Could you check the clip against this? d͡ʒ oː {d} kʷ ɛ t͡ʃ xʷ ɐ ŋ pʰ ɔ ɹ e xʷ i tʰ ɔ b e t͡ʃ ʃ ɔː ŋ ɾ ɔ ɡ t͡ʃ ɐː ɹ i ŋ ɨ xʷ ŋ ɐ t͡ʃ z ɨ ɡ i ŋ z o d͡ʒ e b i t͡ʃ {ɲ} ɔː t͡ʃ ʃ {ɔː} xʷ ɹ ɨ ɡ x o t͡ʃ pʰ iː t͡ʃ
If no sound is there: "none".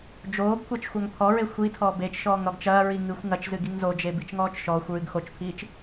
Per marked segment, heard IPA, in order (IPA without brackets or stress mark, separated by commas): ɡ, ŋ, ɔː